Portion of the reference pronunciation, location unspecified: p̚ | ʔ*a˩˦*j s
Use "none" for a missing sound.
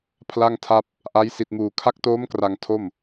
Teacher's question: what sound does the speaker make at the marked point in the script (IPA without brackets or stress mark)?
a˦˥